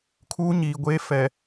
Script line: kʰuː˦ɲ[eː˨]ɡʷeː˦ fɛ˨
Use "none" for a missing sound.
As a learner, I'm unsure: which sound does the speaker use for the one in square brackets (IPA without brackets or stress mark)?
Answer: iː˨